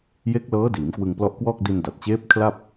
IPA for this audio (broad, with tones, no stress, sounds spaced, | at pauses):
j e˦˥ k̚ l ɤː˦˥ d iː˩˦ m k w ɯ˧ ŋ p l ɔ˦˥ ʔ k w ɔː˥˩ k̚ d i˧ n d a˨˩ t̚ t͡ɕ eː˦˥ p̚ kʰ l a˥˩ p̚